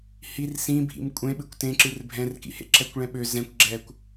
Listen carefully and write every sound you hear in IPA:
h i r s ĩ bʱ ḭ m kʷʼ ẽ ɓ ɨ kʷ t ẽ ǁ ɨ r bʱ ɛ̃ r k ḭ h ḛ ǁ ɛ kʷ ɭ ɛ̃ ɓ ø z ɛ̃ kʷ ɡ͡ǁ ɛ kʷ

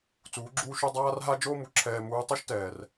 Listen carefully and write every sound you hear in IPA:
t͡s uː˩˧ ɡ͡ǁ uː˧ ʃ u˧ dˤ aː˥ r ɦ a˥ d͡ʒ oː˥ m u˩ ǁʰ ɛː˧ m uː˧˥ tˤ o˥ ʃ t ɛː˩ r

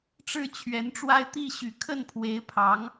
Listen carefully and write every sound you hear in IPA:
ʈ͡ʂ ɻ̩˥˩ t͡ɕʰ ɥ ɛ˧˥ n ʈ͡ʂ w a˥ ɪ̯ t̪ i˥˩ ɕ y˨˩ kʰ ə˥˩ n pʰ w e˧˥ ɪ̯ pʰ ɑ˧˥ ŋ

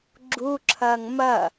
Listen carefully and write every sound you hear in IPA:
ɡ͡ǁ u ǁʰ ɐː ŋ m ɐ

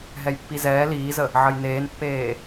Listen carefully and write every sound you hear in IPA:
ɦ ɛ j pː i z ɛː l iː z ə | ʕ ə j n eː n pː eː

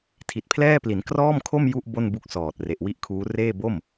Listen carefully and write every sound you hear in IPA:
tʰ i˨˩ t̚ pʰ l ɛː˥˩ p l i˩˦ n k r ɔː˥˩ m kʰ o˥˩ m j u˥˩ ʔ b o˥˩ n b u˦˥ k̚ s ɔː˨˩ t̚ r e˨˩ ʔ w i˥˩ ʔ kʰ uː˦˥ r eː˥˩ b o˥˩ m

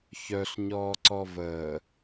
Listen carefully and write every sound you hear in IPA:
ç œ ɬ ɲ ɔː ǀ ɔ v əː

